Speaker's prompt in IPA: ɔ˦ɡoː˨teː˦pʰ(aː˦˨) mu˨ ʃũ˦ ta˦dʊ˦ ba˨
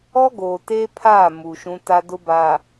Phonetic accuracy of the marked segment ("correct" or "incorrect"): correct